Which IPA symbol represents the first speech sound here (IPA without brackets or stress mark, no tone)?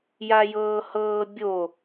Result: j